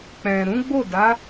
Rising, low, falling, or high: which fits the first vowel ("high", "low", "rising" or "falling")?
low